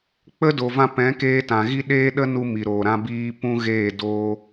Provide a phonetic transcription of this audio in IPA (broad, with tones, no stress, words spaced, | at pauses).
k͡pə˦do˨vã˧ pɛ̃˨˦keː˧tã˨ɣi˦ ɗeː˦ɗə˦ nu˦mi˨ɾoː˨ ɾã˦biː˦ pũ˦ɣeː˦˨ doː˦